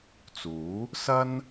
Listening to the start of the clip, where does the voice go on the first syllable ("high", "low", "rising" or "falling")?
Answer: rising